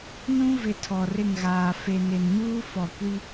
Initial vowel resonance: nasal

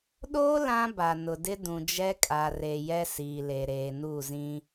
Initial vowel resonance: oral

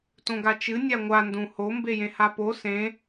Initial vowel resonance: nasal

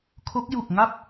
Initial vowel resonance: oral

